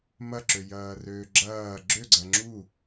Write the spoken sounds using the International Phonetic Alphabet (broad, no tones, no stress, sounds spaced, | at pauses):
m ɐ ǁ ø j ɐː r øː ɡ͡ǁ ɐː ɡ͡ǁ ø ɡ͡ǀ ɐ ŋ͡ǁ u